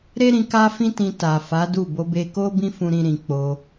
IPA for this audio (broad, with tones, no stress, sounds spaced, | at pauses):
ɾ e˦ ɾ ĩ˧ k a˦ f ĩ˦ t ĩ˧ t a˨ f a˨˦ d u˦˨ b o˧ b e˧ k o˦ b ĩ˦ f ũ˧ ɾ ĩ˧ ɾ ĩ˨ k͡p o˧